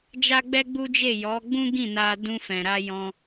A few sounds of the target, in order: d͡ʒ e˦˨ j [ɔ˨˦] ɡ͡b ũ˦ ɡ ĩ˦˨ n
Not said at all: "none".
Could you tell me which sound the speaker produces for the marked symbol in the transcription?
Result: ɔ˨˦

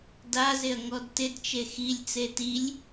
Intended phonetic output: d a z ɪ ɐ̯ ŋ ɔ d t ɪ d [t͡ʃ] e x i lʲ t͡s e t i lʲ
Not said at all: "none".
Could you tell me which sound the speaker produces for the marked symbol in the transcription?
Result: t͡ʃ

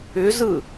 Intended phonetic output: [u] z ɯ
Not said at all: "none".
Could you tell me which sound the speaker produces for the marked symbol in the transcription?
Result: ʏ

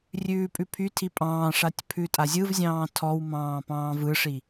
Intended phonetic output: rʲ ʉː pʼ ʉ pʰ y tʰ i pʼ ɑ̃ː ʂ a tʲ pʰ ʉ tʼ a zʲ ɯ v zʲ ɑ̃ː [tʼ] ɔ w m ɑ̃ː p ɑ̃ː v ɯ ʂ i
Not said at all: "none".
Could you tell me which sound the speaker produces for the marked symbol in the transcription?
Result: tʰ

